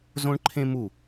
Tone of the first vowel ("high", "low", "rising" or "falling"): high